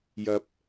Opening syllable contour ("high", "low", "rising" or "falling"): low